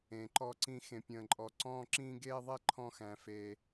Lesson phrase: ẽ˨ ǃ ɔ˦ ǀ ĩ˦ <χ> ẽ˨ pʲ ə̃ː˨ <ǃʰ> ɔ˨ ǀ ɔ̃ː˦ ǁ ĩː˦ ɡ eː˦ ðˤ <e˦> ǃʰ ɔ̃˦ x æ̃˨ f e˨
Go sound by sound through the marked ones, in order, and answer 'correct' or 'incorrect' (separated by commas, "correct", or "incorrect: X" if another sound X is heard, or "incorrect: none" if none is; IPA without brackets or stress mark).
incorrect: x, incorrect: ǃʼ, correct